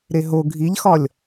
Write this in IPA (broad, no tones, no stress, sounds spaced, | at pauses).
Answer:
ɾ e ɦ o ɡʱ i ʎ x ɒ lʲ